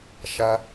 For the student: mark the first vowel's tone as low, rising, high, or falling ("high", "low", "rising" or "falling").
low